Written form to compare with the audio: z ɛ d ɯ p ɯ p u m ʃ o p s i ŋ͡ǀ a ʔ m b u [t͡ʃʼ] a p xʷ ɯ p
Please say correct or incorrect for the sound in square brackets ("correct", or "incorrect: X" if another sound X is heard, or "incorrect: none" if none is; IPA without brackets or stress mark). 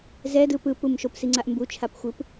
incorrect: t͡ʃʰ